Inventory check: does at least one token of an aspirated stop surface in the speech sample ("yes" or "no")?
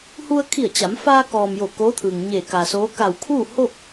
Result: yes